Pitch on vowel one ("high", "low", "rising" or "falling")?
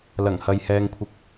low